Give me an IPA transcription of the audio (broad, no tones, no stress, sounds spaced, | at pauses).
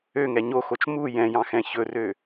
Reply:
ø ŋ ɛ ɲ o x o t͡ʃ m u j ɛ̃ j ɑ̃ x ɛ̃ ç ɵ r ø